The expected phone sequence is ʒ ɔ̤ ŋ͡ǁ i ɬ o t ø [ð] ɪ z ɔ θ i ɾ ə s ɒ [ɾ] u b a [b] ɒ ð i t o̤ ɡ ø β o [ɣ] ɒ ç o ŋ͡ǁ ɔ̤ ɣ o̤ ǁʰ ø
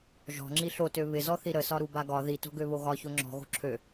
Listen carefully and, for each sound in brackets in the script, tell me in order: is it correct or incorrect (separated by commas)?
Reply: incorrect, correct, incorrect, correct